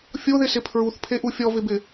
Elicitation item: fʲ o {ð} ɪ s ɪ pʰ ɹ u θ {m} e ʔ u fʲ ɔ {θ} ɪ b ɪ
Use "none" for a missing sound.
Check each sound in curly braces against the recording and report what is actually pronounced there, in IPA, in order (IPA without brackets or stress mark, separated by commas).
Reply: ð, pʰ, v